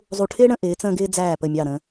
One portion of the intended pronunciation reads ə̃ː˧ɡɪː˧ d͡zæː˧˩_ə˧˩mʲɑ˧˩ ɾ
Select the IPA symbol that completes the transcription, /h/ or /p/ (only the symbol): p